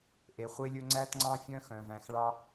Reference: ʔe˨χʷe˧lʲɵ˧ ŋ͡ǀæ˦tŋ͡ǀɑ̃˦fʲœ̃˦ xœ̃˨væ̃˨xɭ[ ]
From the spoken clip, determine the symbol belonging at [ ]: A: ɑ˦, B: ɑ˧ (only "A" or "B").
B